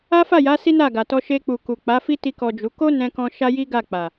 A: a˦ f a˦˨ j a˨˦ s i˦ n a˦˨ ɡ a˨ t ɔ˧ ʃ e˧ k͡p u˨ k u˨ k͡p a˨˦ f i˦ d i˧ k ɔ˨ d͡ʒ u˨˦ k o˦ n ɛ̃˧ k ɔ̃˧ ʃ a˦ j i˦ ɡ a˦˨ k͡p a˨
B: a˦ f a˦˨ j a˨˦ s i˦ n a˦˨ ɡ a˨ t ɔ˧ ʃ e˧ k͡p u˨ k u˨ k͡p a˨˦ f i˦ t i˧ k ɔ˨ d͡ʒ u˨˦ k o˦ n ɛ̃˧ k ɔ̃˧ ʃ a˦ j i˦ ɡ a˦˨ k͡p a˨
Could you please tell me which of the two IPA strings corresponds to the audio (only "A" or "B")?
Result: B